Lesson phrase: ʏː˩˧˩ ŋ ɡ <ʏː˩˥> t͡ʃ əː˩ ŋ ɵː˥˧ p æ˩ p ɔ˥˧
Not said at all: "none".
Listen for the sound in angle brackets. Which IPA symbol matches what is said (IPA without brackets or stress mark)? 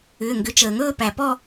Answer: ʏ˩˥